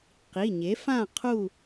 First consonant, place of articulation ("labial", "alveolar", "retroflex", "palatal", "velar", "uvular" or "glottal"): uvular